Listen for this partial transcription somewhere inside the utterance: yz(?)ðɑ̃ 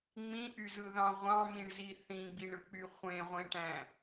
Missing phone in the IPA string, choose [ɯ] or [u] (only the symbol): ɯ